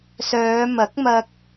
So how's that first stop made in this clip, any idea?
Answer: plain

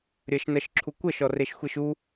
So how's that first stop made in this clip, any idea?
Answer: click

